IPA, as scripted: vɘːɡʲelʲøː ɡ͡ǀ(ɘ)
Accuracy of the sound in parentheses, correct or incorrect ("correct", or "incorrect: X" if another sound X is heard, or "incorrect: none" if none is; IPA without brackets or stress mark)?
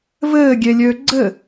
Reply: correct